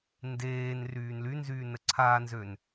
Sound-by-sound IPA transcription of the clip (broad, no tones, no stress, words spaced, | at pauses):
ndeːn ryːnlynzyː nəǀʰanzøn